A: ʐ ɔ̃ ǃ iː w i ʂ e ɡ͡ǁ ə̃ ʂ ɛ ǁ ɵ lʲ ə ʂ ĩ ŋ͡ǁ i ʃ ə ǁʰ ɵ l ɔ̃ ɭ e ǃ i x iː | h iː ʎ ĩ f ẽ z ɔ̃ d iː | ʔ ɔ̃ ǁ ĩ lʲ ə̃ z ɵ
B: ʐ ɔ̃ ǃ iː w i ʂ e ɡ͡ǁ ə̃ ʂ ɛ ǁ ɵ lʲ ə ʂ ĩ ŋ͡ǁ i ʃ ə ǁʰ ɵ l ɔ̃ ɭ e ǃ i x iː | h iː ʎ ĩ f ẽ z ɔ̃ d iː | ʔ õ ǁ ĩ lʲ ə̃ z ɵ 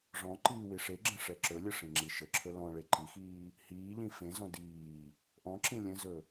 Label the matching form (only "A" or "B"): A